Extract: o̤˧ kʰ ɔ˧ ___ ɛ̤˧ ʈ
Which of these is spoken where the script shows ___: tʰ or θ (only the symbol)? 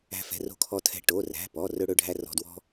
tʰ